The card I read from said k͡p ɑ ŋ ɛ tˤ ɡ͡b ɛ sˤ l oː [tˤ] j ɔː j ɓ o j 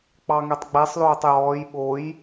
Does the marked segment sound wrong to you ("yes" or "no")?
no